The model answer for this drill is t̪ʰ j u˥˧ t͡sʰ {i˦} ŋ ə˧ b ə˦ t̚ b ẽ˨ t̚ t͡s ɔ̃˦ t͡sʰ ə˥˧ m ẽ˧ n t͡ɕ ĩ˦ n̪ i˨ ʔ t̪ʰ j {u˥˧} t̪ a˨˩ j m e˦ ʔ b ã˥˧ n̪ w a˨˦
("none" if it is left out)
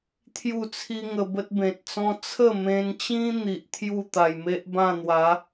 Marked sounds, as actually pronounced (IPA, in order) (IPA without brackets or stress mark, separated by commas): i˦, u˥˧